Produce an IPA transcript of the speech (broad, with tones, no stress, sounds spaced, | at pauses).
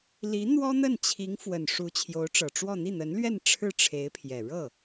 l i˧˥ n̪ w ɔ˥ n̪ ə˥˩ n t͡ɕʰ i˧˥ ŋ f w ə˨˩ n ʂ u˧˥ t͡ɕʰ j o˧˥ ʊ̯ ʈ͡ʂ ɤ˨˩ ʈ͡ʂ w ɔ˥˧ n̪ i˥˩ n̪ ə˧˥ n l ɥ ɛ˥˧ n ʈ͡ʂʰ ɻ̩˥˩ ʈ͡ʂʰ e˧˥ ɪ̯ pʰ j ɛ˨˩ ɻ ɤ˥˩